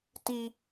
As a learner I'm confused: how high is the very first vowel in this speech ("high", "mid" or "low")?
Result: high